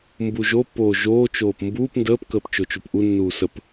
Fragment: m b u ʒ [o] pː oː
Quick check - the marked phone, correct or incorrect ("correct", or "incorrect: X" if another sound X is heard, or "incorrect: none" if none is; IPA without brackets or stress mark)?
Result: correct